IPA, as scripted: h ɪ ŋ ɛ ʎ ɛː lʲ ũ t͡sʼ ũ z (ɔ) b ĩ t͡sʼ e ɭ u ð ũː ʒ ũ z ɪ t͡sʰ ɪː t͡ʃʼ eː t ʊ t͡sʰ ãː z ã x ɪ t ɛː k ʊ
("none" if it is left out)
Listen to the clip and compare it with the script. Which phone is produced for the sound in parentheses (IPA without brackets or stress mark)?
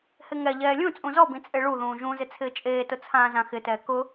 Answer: ɔ